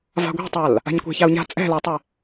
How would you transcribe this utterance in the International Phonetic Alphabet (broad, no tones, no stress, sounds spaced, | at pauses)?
v a̤ ɡʷ ɛ̤ tˤ a l | a̤ ɲ kʷ ɛ̤ ç a u̯ ɲ a̤ t͡sʼ ɛ̤ l a tˤ ɘ